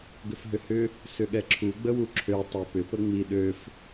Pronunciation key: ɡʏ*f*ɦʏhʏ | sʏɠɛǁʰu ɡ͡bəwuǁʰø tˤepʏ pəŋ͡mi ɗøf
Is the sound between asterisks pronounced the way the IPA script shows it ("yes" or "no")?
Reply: yes